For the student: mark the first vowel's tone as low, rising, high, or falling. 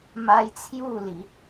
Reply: high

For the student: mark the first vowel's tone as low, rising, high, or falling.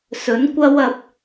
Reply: rising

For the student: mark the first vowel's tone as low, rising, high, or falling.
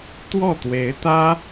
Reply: falling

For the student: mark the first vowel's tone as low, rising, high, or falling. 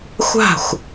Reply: falling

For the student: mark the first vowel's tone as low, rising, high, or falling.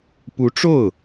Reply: rising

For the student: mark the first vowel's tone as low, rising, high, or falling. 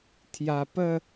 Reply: low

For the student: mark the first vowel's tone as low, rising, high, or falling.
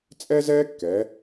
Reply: high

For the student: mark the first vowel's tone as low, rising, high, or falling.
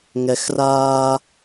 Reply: low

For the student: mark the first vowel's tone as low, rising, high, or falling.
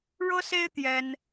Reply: high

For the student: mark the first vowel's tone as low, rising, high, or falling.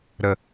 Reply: low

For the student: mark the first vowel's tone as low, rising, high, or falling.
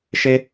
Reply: high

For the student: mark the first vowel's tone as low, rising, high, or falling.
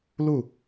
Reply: falling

